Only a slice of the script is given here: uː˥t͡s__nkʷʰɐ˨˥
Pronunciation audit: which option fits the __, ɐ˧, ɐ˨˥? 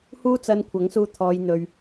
ɐ˧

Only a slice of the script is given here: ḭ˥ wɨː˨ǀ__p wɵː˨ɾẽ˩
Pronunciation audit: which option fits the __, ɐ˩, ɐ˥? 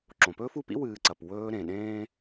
ɐ˩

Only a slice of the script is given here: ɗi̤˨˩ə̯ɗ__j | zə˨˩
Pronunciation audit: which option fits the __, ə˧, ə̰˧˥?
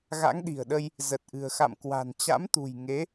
ə˧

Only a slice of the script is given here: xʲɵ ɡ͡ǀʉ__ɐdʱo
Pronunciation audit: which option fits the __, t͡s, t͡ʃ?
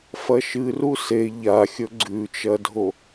t͡ʃ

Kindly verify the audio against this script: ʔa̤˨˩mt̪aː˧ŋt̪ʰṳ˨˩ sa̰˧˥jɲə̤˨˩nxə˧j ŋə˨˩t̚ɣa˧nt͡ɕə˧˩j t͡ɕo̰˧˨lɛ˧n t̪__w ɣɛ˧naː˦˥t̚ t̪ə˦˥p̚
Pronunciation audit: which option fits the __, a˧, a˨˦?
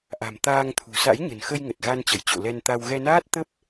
a˧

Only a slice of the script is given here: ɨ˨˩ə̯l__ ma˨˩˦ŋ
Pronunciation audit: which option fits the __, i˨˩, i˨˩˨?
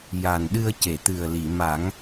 i˨˩˨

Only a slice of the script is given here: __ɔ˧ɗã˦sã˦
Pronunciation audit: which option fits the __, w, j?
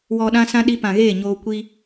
w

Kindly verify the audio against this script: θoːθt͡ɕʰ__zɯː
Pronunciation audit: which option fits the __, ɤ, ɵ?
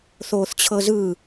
ɤ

